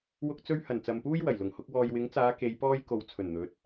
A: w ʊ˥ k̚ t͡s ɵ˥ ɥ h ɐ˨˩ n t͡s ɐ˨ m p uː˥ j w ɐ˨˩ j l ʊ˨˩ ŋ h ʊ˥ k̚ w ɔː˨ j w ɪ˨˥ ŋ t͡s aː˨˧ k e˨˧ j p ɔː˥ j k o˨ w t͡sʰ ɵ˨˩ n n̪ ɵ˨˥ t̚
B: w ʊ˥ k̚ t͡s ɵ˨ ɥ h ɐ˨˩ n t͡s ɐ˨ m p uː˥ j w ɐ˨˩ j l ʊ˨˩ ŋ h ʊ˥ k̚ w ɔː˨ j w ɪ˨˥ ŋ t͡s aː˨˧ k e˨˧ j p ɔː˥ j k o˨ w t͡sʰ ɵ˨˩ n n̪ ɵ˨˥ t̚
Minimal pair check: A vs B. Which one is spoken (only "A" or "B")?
A